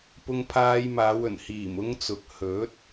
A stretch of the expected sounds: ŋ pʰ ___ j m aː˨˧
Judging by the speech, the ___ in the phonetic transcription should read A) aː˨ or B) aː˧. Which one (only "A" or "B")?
B